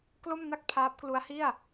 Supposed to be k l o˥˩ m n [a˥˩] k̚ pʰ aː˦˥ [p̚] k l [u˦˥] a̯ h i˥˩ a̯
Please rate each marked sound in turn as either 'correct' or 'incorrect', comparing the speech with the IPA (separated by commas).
correct, correct, correct